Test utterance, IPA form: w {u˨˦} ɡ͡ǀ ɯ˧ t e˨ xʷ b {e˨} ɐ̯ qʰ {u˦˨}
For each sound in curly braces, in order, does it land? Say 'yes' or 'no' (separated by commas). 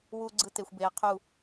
no, yes, yes